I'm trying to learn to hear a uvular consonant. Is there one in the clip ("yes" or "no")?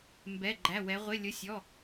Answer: yes